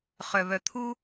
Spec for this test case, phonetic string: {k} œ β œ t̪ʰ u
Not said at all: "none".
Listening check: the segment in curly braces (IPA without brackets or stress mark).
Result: χ